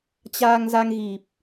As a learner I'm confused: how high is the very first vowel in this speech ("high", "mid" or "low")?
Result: low